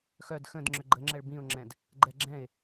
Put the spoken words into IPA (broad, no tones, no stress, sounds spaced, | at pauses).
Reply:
x œ d x ə̃ d ŋ͡ǁ ʏ ɡ͡ǃ ə ŋ͡ǁ ɛ ɭ b ĩ ʊ̯ ŋ͡ǁ ɛ̃ d | ɡ͡ǃ ɛ ɡ͡ǁ ɛ̃ ɪ̯